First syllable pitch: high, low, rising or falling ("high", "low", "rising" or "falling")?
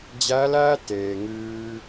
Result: rising